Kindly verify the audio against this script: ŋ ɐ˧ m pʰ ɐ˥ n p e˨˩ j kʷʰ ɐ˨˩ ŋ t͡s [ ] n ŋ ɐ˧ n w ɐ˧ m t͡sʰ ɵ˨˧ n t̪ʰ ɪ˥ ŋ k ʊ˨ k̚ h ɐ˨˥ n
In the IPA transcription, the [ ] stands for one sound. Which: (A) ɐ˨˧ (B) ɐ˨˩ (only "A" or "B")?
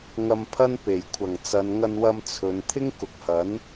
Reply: A